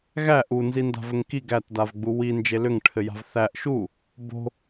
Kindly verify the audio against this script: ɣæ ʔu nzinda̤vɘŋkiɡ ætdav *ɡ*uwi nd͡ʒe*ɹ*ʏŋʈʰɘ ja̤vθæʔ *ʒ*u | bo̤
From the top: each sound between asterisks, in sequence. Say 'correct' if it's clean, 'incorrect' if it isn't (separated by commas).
incorrect, incorrect, incorrect